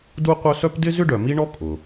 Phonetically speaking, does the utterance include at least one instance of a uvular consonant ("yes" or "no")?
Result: yes